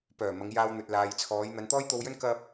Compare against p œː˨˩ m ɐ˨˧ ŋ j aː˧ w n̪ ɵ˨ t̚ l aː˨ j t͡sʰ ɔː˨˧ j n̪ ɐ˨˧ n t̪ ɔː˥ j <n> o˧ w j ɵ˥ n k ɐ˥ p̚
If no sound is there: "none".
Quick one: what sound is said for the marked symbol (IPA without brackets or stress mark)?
t̪